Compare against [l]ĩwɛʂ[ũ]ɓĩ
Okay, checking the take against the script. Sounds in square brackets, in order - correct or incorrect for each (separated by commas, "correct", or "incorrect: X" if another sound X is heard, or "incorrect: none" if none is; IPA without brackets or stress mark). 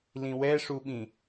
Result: correct, incorrect: u